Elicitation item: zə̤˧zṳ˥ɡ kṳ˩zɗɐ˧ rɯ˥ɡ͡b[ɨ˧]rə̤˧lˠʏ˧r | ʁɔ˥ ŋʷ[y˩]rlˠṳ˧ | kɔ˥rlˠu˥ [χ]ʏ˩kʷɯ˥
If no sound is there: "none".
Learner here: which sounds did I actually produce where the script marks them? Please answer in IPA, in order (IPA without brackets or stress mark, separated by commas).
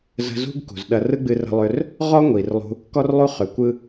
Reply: ɨ˧, i˩, χ